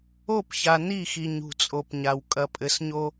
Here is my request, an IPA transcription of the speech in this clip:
o˦˨ p ç a˨ n i˦˨ x i˨ ɲ ṳ˨ t͡sʼ o˨ p ɲ a˨ w kʼ ɐ˨ pʼ ɘ˨ s ɲ o˦

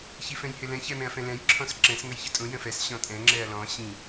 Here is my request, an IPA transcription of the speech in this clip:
ç i f ɛ̃ j h ɪ l ɛ̃ ç ɛ m ɛ̃ ɐ̯ f ɛ̃ l ɛ̃ j ǁʰ ɔ̃ s ǁ ɛ̃ s ŋ ə j ç ə tʼ ũ j ə̃ f ɛ s ɕ ɔ̃ tʼ ɛ̃ ŋ͡ǁ ɛ ɐ̯ l ɔ̃ ɕ ĩ

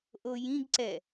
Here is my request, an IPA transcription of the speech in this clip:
ʔ o j ĩ ɡ ǀ ɛ

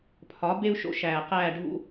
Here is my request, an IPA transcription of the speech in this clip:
pʰ ɒ˩˥ b e˥ u̯ ʃ o̰˦˨ ʃ æː˨˩ q æː˦˨ ɖʱ ṵ˥

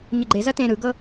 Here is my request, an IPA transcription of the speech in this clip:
ɲ ə ɡ͡ǃ e z ɐ t ẽ ɾ ɯ ɡ ɤ

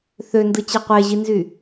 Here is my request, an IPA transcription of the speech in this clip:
θ ø n d ɯ t͡ɕ e qʷ e ʑ i n z y

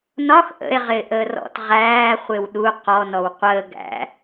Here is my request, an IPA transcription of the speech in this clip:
n ɒ x ʔ ə̰ e̯ ʁ ɪː ʔ əː r ɔ̰ t ʁ æː χʷ ɪ w ɗ u q ɔ n ɔ w qʷ əː ɡ æ̰

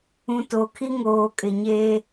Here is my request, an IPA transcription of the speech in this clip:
ũ˨ t o˨ kʰ i˦ ŋ oː˨ kʼ ɪ˨ ɲ eː˦

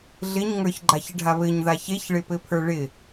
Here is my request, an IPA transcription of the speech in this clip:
ɮ ɪ ɲ ŋ ə˞ ç ɡ͡ǃ a ç ɪ ɖʱ a β ɘ ɲ ð a ç e ç ɭ ɪ p ɘ pʰ ə˞ ɭ ɪ

